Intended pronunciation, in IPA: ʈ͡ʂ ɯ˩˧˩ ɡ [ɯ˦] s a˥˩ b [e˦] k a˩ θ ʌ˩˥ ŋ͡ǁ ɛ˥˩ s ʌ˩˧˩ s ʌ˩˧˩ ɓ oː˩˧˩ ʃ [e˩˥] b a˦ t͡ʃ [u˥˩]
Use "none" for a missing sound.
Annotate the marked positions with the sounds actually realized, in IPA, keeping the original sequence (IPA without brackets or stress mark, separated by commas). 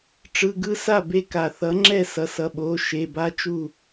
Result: ɯ˦, e˦, e˩˧˩, u˥˩